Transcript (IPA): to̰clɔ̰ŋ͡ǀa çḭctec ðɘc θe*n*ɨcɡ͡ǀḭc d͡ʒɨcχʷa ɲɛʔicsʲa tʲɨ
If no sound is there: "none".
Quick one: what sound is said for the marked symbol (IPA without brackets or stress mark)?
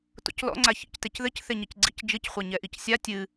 ɲ